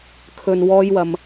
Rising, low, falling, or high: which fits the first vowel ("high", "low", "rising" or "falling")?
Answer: low